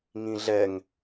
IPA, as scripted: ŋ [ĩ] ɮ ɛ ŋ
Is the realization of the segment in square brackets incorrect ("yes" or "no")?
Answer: no